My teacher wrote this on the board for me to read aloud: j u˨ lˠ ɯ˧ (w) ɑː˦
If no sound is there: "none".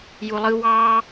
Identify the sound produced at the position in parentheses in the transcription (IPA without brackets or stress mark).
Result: w